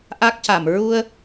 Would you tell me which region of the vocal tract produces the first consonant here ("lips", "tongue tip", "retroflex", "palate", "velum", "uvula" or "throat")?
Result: throat